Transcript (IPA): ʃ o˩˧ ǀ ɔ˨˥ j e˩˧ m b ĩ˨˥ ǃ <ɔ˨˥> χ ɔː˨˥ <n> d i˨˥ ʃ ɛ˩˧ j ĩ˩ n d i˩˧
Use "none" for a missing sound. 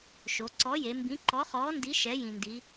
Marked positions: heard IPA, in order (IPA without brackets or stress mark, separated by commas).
ɔ˨˥, n